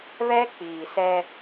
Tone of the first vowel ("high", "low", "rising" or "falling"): high